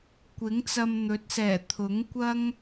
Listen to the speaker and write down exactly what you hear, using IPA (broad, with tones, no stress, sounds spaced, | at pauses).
kʷ ɪ˨˥ ŋ t͡s ɐ˧ m n̪ ɵ˨˥ t̚ s ɛː˨˩ t̪ʰ ʊ˨˥ ŋ kʷ ɐ˥ ŋ